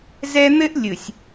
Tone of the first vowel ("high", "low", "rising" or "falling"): high